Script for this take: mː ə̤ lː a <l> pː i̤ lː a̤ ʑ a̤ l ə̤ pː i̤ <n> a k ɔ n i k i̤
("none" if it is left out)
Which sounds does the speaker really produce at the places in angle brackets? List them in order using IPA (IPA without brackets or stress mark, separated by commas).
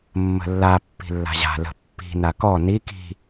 none, n